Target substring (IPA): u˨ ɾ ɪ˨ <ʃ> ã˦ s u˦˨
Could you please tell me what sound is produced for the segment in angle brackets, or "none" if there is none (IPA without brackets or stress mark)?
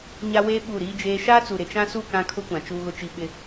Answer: t͡ʃ